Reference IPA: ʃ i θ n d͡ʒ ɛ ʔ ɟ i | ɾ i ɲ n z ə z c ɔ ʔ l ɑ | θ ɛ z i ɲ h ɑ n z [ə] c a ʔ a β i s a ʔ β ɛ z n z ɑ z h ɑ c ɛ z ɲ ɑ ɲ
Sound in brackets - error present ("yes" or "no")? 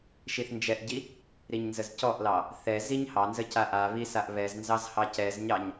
no